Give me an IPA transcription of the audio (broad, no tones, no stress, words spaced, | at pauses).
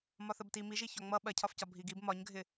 mɒθəbti miʒi çɒŋ͡mʌ ɓɜcʰɒfcɒ bʱiɡib mɒɲɡʱɪ